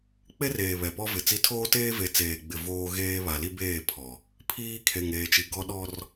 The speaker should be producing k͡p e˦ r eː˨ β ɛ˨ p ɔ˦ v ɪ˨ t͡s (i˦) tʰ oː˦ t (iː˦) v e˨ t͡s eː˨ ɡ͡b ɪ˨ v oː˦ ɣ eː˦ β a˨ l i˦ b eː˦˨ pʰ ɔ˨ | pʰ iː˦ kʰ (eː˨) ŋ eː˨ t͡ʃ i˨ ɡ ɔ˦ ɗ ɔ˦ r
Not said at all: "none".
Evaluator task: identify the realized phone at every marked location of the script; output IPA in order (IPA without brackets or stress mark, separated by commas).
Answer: i˦, eː˦, e˨